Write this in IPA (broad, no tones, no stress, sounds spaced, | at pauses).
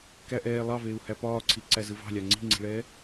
k æ ʔ ɛː lˠ ɑ v eː u̯ h æ p ɒː ǀʰ i ǀ æ z ɯ v ɑ̤ lʲ ɑ ŋ͡ǀ i̤ ŋ͡ǀ i̤ ɭ ɛː